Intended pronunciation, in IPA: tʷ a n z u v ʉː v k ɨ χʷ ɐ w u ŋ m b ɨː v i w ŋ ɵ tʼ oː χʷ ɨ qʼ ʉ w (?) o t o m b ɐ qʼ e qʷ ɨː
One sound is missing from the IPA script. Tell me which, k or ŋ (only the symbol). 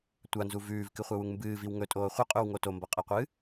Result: ŋ